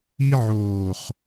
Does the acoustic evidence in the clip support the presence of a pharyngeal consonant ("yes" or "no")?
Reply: yes